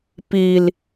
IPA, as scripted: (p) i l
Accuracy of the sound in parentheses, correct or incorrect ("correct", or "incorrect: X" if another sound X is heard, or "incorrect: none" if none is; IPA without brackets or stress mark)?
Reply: correct